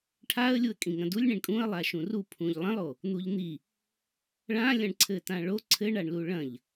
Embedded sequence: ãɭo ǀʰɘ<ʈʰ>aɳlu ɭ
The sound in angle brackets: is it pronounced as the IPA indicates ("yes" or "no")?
no